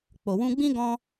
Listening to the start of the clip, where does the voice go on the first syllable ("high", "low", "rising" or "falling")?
low